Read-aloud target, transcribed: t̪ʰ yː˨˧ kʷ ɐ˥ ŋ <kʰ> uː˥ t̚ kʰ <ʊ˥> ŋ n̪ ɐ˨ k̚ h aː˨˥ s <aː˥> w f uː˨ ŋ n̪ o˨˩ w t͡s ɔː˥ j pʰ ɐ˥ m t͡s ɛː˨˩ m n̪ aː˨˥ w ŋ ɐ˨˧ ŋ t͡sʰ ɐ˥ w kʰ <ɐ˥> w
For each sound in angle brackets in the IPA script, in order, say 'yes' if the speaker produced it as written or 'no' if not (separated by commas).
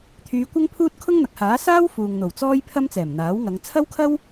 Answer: no, yes, yes, yes